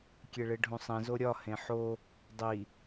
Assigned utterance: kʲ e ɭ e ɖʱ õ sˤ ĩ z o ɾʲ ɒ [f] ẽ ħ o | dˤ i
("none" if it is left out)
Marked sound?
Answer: h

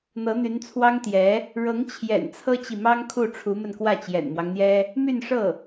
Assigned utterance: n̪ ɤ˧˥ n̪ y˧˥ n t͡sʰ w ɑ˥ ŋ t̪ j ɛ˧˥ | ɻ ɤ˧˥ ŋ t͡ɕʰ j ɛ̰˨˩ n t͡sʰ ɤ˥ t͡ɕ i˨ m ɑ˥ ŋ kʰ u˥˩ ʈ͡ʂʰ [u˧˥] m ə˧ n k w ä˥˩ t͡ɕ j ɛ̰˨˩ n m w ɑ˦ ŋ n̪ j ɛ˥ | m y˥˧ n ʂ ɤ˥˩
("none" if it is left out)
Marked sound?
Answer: u˧˥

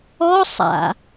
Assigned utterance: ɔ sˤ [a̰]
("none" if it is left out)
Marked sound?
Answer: a̰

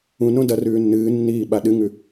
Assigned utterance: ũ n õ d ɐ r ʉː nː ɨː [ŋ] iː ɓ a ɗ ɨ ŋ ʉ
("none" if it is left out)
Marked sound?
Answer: nː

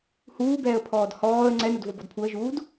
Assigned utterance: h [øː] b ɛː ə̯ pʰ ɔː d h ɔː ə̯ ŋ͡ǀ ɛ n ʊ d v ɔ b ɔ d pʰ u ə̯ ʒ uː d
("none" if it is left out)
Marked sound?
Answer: uː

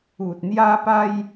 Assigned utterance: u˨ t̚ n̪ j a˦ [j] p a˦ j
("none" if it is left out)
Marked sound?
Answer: none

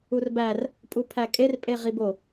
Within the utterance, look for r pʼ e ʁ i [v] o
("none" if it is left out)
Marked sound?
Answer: b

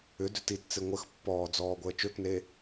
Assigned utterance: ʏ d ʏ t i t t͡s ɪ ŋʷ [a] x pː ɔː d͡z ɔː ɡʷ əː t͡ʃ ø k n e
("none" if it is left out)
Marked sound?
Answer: ə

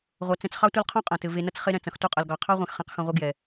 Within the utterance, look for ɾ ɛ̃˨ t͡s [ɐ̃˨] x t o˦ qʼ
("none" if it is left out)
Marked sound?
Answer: ɐ̃˨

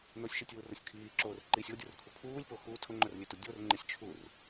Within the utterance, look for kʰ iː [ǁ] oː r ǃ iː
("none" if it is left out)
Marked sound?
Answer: ǁ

